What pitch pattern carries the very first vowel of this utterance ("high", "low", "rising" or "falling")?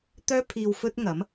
high